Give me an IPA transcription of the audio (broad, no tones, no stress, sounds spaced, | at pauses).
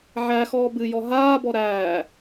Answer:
ʕ æ x ɔː b ɨ j ɔ ɦ aː b ɔ ɾ æː